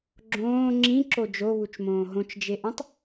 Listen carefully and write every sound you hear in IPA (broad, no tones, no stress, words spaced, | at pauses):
ɡ͡ǁõː ŋ͡ǁĩǁo d͡ʒoβut͡ʃmõː ɦõt͡ʃd͡ʒeʔõtˤ